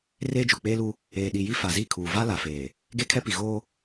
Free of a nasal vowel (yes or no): yes